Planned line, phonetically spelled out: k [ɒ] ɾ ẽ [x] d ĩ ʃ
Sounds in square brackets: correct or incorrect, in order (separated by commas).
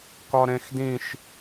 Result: correct, correct